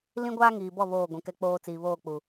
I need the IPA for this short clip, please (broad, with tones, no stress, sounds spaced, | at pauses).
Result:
l ĩ˦ ɡʷ aː˦ ŋ iː˨ b ɔ˦˨ β oː˦˨ ɡʷ ĩ˨ k ɛ˦ k͡p oː˦ t͡s iː˨ β oː˦˨ k͡p u˨